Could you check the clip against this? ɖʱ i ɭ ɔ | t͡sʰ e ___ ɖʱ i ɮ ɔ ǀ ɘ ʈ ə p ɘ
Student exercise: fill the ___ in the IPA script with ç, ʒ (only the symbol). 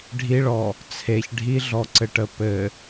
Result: ç